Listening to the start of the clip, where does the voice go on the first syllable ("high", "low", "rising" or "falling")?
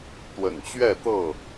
low